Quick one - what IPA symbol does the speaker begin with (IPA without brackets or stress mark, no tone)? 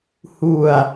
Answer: h